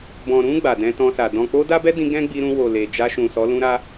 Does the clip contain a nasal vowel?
yes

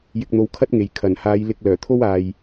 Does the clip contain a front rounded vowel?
yes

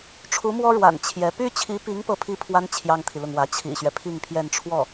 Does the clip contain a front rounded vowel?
yes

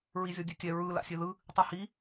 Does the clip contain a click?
no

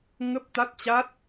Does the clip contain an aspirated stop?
no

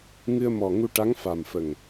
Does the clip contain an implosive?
no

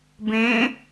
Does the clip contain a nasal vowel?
yes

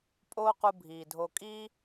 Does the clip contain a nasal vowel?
no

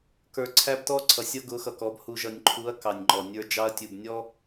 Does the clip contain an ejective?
no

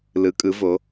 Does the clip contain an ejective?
yes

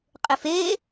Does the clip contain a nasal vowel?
no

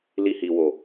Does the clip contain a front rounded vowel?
no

